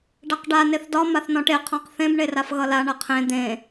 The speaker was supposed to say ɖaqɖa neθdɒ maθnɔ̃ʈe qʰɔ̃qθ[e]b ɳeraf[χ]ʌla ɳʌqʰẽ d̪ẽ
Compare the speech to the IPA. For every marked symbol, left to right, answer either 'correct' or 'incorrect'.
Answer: incorrect, incorrect

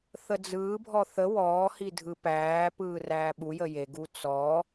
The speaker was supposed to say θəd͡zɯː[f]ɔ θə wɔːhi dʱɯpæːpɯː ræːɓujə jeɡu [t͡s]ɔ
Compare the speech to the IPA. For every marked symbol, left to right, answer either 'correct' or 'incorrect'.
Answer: incorrect, correct

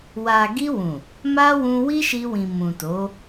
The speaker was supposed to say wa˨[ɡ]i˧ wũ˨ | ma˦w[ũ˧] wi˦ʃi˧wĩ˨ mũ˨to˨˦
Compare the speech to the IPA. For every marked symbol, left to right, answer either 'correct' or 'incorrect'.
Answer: correct, correct

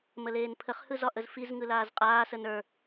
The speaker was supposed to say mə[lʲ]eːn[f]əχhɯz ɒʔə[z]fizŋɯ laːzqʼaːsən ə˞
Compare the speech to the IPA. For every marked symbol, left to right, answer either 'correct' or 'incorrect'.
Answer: incorrect, incorrect, correct

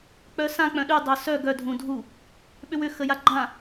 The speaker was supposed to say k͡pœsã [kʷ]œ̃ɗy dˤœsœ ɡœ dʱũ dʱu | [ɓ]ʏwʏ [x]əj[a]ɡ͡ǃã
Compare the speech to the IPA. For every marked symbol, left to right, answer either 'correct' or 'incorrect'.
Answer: incorrect, correct, correct, correct

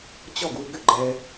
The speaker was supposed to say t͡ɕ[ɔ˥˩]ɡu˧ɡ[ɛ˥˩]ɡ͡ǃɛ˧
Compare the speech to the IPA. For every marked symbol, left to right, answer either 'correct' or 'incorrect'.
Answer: correct, incorrect

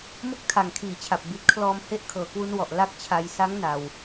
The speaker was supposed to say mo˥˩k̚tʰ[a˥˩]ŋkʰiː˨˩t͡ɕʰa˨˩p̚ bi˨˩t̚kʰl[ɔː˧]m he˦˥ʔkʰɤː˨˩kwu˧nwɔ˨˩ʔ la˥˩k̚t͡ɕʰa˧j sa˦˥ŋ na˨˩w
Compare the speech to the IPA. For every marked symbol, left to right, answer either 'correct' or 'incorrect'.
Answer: incorrect, correct

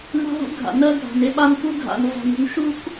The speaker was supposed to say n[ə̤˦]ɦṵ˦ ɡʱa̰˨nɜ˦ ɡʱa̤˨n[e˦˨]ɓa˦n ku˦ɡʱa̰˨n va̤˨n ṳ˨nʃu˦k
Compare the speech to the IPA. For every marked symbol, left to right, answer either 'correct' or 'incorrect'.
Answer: incorrect, incorrect

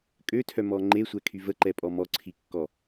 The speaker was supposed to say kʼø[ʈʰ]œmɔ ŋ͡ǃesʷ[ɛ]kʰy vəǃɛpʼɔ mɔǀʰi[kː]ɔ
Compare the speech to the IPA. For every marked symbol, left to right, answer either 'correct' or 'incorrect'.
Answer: incorrect, correct, correct

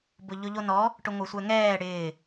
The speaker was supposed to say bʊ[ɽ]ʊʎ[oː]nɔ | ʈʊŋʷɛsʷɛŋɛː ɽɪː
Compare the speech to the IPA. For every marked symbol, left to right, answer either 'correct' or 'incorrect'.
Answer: incorrect, incorrect

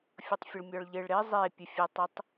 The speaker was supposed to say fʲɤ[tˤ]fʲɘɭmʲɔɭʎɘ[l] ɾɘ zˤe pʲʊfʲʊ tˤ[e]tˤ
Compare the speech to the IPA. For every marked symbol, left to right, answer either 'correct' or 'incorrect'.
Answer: correct, incorrect, incorrect

